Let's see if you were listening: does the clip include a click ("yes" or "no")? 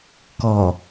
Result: no